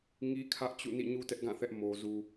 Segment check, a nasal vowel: present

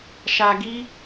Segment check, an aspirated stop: absent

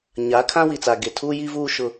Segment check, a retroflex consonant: absent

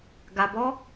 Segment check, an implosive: absent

